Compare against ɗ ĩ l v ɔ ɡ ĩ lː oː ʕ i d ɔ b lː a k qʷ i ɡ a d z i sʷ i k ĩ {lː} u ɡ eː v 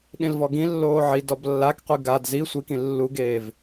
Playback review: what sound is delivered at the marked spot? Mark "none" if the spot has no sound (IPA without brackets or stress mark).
lː